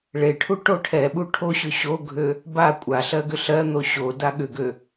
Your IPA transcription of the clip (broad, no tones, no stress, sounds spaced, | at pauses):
ɭ e ʈʰ u ʈ o ʈʰ ɛ ɓ u ʈʰ o ɕ ʏ ɕ o ɡʱ ø | b a kʷʼ a ɬ ɜ ɡ ʏ ɬ ɜ n̪ o ɕ o d a ɠ ʏ ɡ ø